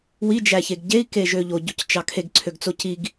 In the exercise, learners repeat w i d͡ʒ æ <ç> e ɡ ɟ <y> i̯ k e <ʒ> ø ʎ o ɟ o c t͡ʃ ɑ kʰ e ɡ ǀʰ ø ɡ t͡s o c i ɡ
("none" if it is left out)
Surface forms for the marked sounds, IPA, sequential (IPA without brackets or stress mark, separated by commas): ç, e, ʒ